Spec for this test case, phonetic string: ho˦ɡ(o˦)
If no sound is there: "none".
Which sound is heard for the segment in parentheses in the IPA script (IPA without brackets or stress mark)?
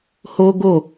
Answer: o˦˨